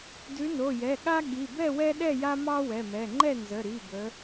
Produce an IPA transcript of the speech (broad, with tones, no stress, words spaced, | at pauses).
dʉ˨˦no˩˧˩jɛ˩˧˩ɠa˦ ɠi˩˧˩bɛ˥˨wɛ˦ ɗɛ˥˨ja˦mɑ˦ wɛ˩˧˩mɛ˩˧˩ ŋ͡ǃɛ˥˨nzə˩˧˩ɾi˩˧˩ bə˨˦